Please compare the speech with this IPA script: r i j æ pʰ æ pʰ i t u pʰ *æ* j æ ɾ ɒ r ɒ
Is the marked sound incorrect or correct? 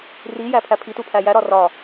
correct